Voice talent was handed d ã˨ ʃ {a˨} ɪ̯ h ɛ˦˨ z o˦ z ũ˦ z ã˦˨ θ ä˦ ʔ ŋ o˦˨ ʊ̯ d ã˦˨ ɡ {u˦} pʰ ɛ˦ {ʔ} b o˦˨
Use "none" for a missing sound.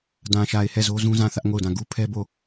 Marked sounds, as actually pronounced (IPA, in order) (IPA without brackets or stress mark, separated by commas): a˨, u˦, none